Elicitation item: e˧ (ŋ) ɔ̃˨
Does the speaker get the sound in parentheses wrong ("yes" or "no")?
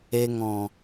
no